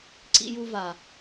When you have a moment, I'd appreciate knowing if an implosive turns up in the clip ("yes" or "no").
no